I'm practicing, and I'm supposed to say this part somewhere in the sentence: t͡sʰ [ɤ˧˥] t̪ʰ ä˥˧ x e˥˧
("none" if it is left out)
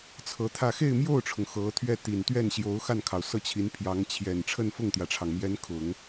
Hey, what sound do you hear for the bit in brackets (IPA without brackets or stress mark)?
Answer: ɤ˧˥